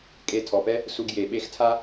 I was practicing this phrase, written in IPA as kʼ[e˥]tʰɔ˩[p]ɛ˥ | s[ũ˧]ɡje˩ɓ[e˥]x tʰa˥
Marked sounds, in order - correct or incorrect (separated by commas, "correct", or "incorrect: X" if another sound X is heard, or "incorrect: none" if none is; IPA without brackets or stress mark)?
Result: incorrect: e˧, correct, incorrect: u˧, correct